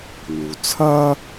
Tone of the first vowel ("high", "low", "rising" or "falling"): low